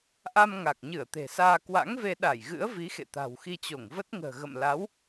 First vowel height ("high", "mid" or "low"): low